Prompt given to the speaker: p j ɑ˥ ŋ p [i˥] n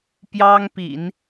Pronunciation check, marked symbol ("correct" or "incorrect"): incorrect